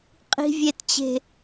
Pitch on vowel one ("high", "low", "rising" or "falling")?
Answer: low